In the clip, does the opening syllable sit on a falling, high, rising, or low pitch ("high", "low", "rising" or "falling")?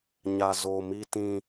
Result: low